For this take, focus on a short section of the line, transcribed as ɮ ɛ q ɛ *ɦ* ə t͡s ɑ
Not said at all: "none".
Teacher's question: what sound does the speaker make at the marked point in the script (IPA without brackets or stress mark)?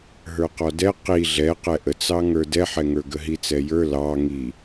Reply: ʔ